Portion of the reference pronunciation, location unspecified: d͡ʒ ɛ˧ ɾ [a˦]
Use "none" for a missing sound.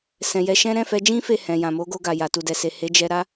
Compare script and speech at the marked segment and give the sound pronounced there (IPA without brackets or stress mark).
a˦